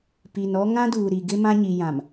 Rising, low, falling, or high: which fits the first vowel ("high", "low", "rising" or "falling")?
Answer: low